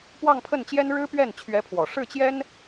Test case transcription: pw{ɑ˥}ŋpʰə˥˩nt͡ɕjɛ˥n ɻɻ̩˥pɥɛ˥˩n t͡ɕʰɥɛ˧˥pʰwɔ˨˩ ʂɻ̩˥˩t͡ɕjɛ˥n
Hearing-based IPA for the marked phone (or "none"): ɑ˥˧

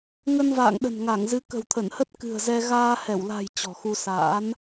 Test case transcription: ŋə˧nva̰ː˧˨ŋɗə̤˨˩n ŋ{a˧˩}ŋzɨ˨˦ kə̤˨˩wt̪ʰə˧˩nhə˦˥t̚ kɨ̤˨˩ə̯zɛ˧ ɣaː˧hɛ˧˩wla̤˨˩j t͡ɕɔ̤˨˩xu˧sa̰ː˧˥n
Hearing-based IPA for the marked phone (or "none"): a˧˩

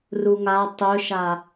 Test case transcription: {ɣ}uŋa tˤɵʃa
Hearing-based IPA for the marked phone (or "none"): r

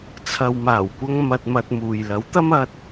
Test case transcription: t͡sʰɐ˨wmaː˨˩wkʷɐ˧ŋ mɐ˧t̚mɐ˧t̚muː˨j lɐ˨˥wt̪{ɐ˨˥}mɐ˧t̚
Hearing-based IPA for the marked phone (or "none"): ɐ˥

